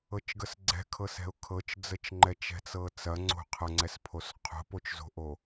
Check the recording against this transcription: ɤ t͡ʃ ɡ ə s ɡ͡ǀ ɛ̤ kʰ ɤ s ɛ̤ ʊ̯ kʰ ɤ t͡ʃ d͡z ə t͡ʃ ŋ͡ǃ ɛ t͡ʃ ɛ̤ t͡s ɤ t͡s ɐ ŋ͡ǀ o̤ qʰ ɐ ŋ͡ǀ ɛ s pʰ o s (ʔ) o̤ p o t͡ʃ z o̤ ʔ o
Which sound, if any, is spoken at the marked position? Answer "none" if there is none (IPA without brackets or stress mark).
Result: qʰ